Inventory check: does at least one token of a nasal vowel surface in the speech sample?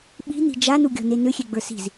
no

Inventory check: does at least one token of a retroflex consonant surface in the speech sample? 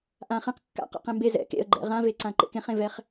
no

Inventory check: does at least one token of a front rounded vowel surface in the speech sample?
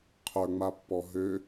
yes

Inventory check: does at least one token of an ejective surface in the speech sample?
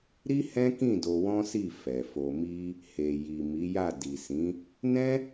no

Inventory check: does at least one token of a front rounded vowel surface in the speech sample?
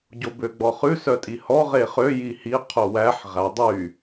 yes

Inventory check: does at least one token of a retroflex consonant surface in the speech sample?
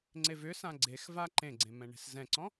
yes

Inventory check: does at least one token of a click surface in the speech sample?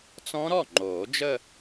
yes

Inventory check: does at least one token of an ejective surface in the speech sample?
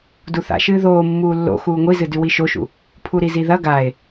no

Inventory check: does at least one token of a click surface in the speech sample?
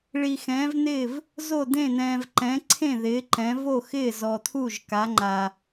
yes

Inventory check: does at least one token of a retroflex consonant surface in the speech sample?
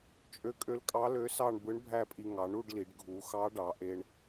yes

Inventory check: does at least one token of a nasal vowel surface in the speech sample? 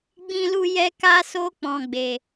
yes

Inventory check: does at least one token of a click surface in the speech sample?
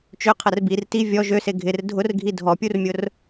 no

